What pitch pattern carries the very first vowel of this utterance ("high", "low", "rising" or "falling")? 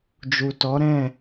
low